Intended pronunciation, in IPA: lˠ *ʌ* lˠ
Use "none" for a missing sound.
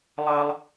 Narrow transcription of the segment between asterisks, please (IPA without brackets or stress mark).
ʌ